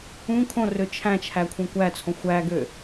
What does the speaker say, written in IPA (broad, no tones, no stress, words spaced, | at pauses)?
ũ kʰõrø t͡ʃʰæ̃t͡ʃʰækʷʰẽ kʷæt͡sʰõ xʷæɡø